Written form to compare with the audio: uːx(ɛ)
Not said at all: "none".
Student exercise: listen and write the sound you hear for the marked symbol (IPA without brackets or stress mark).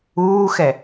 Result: ɛ